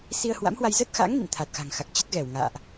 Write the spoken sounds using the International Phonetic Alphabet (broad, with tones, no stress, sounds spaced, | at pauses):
s i˧ ə̯ h w a̰˧˥ m h w a˧ j z ə˦˥ t̚ x a̰˧˥ ŋ n ḭ˧˨ n t̪ʰ a˨˩ t̚ x a̤˨˩ ŋ x a˨˩ k̚ t͡ɕ ə˦˥ t̚ ɣ ɛ˧˩ w ŋ a̰ː˧˨ ʔ